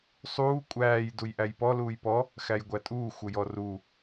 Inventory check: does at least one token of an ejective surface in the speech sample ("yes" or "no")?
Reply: yes